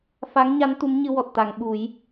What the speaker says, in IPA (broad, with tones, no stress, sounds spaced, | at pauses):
f a˧˥ ŋ ɲ a˧˥ n t̪ u˧˥ m ɲ ɨ˧ w ɔ˨˩ t̚ t̪ a˨˩˨ ŋ ɓ u˨˩˦ j